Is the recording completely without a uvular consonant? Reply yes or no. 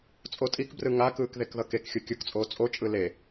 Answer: yes